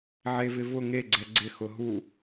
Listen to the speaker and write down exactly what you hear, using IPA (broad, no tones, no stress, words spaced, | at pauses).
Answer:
ʕevɪvʊ ŋe ɡ͡ǀɛɡ͡ǀɪ xʊɦu